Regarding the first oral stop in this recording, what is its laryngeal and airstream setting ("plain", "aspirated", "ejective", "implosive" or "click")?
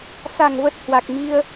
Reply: plain